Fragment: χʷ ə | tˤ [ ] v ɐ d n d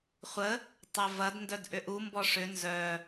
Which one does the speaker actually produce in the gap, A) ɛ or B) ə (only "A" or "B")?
A